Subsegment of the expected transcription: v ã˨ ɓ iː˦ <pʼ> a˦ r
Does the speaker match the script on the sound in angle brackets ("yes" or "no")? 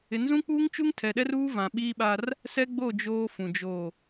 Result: no